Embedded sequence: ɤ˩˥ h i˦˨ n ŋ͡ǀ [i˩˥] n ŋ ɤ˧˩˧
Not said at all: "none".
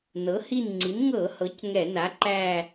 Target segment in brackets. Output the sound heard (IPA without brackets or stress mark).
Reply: i˩˥